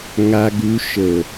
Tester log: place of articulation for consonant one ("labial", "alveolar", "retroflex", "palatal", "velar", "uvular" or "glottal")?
velar